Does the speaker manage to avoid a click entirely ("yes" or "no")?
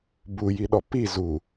yes